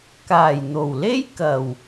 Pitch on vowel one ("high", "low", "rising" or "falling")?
low